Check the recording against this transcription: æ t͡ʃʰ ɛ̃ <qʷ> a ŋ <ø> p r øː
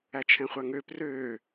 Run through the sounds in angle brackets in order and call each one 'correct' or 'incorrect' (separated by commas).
incorrect, correct